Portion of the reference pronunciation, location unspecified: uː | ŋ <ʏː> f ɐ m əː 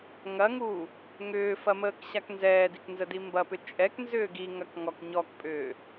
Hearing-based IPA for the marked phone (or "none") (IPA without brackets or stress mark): ʏː